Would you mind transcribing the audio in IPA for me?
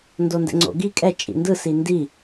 n d o n d ɛ̰ ŋ͡ǀ o̰ ɡ i kʼ ɛ t͡ʃʼ ḭ n d ɯ s i n d i

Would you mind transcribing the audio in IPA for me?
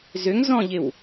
z ʏ ŋ z ɔ̃ ʎ ɪ w

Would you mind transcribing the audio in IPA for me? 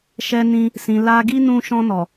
ʃ ɛ˧ n ĩ˧ | s ĩ˨ l a˧ ɡ i˦ n ũ˧ ʃ ɔ̃˧ n ɔ˨

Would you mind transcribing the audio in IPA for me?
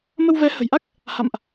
m ə˧ w v ɛ˨˦ h ə̤˨˩ j ʔ a˦˥ k̚ | h a̰˧˨ m ʔ

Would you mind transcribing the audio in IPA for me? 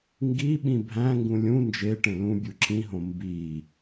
ŋ ɡ i ɓ ĩ bʱ æ̃ ŋ ɡ ũ lʲ ũ n d͡ʒ e ʈ ẽ l ũ bʲ u ǁ ĩ ɦ õ m b i

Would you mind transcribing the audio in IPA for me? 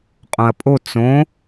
qʼ õ ɐ̯ pʼ o t͡s õ

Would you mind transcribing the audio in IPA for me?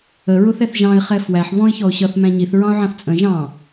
ə ɹ ʊ θ ɛ θ ʒ ɑ̃ ɪ̯ χ ɛ f w æ ħ β ɔ̃ ɪ̯ ç ɔ ʊ̯ ɕ ʌ θ m æ̃ ɲ i θ ɹ ɑ̃ ʊ̯ ʕ ɑ̃ θ t͡sʼ ə̃ ʒ ɑ̃

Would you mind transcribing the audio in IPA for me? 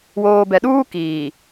w oː˨ b ɛ˨ ɗ uː˦ k iː˨

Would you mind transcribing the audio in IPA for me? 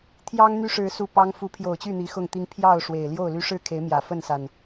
t̪ʰ j ɑ˦ ŋ n̪ y˦ ʂ ɻ̩˨˦ s u˨˩ p ɑ˦ ŋ f u˨˦ pʰ j o˨˩ ʊ̯ t͡ɕ y˥˨ n̪ i˨˦ x ʊ˥˨ ŋ t̪ i˦ ŋ pʰ j ɑ˥˨ ʊ̯ ʂ w e˨˩ ɪ̯ l j o˥˨ ʊ̯ l y˦ ʂ ɻ̩˥˨ kʰ e˨˦ ɪ̯ m j ä˨˩ f ə˥˨ n s a˨˩ n

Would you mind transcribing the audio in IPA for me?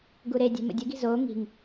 ɡ u ɾ e dʲ ɛ̤ m ə̰ dʲ ə ɡ i̤ z oː ŋ i̤ ŋ

